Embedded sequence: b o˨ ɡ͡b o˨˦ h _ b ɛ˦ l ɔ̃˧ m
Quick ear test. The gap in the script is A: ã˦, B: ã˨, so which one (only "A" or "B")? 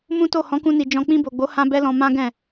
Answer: A